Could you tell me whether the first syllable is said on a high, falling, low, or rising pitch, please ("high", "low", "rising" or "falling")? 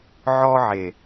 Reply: high